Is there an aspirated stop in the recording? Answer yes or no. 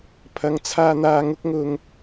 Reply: yes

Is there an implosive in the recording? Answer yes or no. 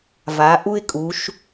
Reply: no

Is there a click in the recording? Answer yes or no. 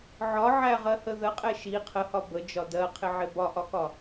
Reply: no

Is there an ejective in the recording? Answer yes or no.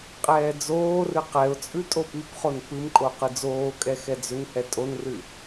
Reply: yes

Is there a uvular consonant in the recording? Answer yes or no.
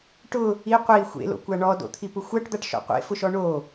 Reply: yes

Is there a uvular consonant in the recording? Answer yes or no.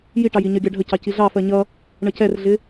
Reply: no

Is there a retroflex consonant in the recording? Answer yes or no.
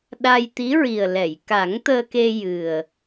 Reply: no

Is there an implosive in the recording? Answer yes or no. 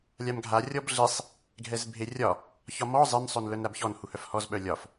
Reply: yes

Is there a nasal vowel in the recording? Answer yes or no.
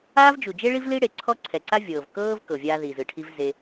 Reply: no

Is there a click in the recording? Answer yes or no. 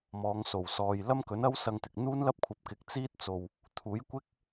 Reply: no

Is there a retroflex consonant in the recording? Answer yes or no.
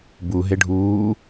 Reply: yes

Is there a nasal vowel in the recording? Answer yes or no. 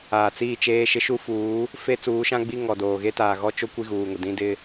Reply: yes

